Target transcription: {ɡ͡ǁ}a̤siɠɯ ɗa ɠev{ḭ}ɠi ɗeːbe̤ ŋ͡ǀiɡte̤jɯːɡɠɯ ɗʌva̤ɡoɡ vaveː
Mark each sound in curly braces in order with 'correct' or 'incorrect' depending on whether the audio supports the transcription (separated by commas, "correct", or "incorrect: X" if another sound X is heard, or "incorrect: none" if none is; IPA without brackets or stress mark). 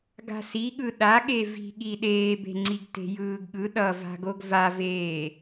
incorrect: ɡ, incorrect: i̤